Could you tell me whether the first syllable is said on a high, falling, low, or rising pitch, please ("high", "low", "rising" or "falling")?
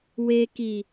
low